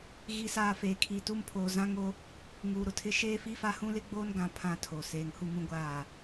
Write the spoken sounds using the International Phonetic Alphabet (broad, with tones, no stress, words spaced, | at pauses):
ɣi˨saː˨ feː˨kʰi˨tu˦m pʰoː˨zã˦ŋo˦ | ŋuː˨ɾʊ˦tʰɪ˦ ʃeː˦fi˦fa˦ hũ˦lɪ˦ɡ͡boː˦nɡã˨ pʰã˦tʰo˨ seː˨ŋhu˦mũ˦ɡʷaː˦˨